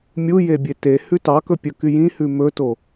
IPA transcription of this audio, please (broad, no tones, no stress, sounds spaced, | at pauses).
mʲ u j e bʲ e t e h ʉ t ɑ k ɵ pʲ ɵ k y j ĩ h ʉ m ɵ t o